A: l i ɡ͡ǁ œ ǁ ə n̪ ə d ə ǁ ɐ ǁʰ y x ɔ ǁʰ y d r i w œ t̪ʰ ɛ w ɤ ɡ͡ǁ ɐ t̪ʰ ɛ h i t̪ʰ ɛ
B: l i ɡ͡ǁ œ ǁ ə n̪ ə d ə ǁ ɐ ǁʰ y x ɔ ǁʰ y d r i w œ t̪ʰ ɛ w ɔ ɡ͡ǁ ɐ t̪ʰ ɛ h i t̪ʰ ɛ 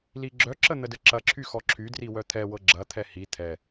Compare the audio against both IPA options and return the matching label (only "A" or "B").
A